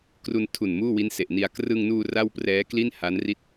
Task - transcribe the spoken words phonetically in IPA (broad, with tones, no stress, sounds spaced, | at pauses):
k r u˧ n tʰ u˨˩ n m uː˥˩ w i˦˥ n s e˨˩ ʔ n i˧ a̯ k r ɯ˧ ŋ n uː˧ r a˥˩ w p r ɛː˦˥ k l i˥˩ n h a˦˥ n r i˥˩ t̚